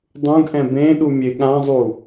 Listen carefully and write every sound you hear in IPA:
dˤũɡʔɛ̃ bẽ ɗumʲeɠãzˤu

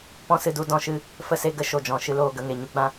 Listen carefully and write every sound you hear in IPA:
pɔ̃˦sɨ˧du˧ dɔ̃˧ʃɨ˧ | fə˧se˧ɡə˧ ʃo˨d͡ʒɔ̃˨ ʃɨ˧loː˦˨ ɡə˦˨ŋe˨ ɲu˧ɡ͡bã˧

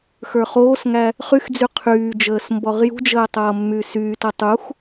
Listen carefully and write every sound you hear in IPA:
xə˞χoːsŋæ | χyxd͡zy qʰyːd͡ʒəːs mbɔʁjṳd͡ʒəː tˤʌːmːysyːtʌ tˤux

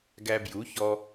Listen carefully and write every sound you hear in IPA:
ɡæ˧bju˨˦çɔ˧

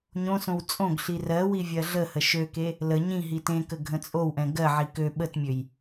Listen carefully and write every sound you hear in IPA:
ɲõsõw t͡sʼõɡɬi rɜwi vʲɜɮəhə ʃøke | lə ɲĩ ɦitẽkə ɡʱə̃t͡sʼowʔɛ̃ ɡɜʕi kø ɓətmʲøj

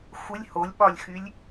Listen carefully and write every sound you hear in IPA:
xʷɪlʲ holʲɓɒlʲxylʲ

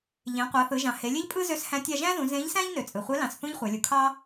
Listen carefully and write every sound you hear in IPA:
ʎẽ˩˧qʷɑ˩˧θɯ˩˧ ʒɑ̃˩he˩˧lʲe˥ʎpʼɯ˥ zø˧˥shæ̃˧˥ tʲɑ˧ʒæ̃˥zũ˩˧ zẽ˧˥ʎsæ̃˥ʎ nø˩t͡sʼɯ˩ χʷe˧˥lɑ̃˩˧s θũ˥ʎχʷæ˩˧lʲu˩˧kʰɑ˥

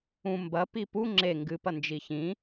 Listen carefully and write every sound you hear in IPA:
ũ mbɐpi pu ŋ͡ǁe ŋɡɨpɐ nd͡ʒiçĩ

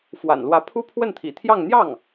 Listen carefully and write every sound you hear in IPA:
fwa̰˨˩nlwä˧˥ pʰu˥pʰwə˥˩nt̪ʰḭ˨˩t̪ʰjɑ˥˧ŋ n̪jɑ˥˩ŋ

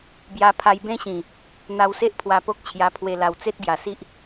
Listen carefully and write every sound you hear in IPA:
bja˧pʰa˧jbẽ˦ɕĩ˨˩ | n̪a˧wse˦ʔ pʰwa˧po˦k̚t͡ɕʰja˧pʰwe˧ la˨˩wt͡se˦t̚ ɡja˨˩si˦ʔ

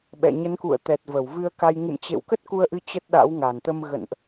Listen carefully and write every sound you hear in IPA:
ɓɛ̰˧˨ ɲə˨˦nkṵ˧˨ə̯t̪ɛ˨˩t̚ və˧˩wvɨ˧ə̯ka˧j ŋɨ̰˧˨m t͡ɕḛ˧˨wkə˦˥t̚ ku˧ə̯ʔɨ˧ t͡ɕə˦˥t̚ɗa̰˧˥w ŋa˨˩nt̪ə˧m ɣə̰˧˨nʔ

